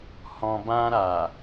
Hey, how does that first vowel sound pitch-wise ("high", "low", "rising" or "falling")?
low